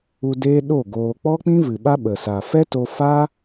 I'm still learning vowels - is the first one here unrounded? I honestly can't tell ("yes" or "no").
no